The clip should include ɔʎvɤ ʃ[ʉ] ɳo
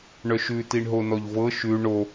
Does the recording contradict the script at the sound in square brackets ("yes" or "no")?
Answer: no